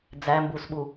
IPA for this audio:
d͡z æ m b u s ɓ u

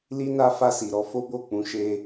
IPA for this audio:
l i˦ n a˦ f a˦˨ s i˨ ɾ ɔ˧ f o˦ b o˦˨ k͡p ũ˨˦ ʃ e˧

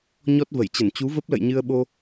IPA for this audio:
ɲ ɔ˦˥ t̚ v ə˧˩ j t͡ɕ ə˧˩ n t͡ɕ u˨˦ v ə˦˥ p̚ l ə̰˧˨ j ɲ ɨ˧ ə̯ ɓ o˧

